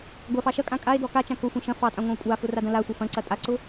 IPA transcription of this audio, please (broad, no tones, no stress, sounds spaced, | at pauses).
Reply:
ɡʷ a f ɑ ʃ ɐ kʼ ã kʼ a e̯ d ɔ k a t͡ʃ ã k ʊ xʷ ə̃ ʃ ɐ̃ f ɑ tʼ ã ŋʷ ã o̯ kʷʼ a f ʊ r a d ɐ̃ l a sʷ ɐ f ɐ̃ ǀ ɐ tʼ a ǀ ʊ